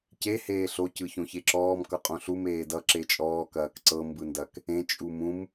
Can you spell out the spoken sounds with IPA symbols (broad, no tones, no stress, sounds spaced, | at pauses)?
c e h eː ɬ o c ɯ ç õ ç e ǁ ɔː m k ʌ qʼ õ ɬ u m eː d ʌ ǁ e t͡ʃʼ ɔː k ɐː k ǀ ɤ m b ɯ n d ɐ k | ẽ t͡ʃʼ u m ũ m